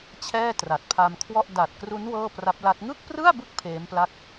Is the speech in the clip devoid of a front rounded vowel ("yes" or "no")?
yes